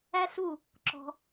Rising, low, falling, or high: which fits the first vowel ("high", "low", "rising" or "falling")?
high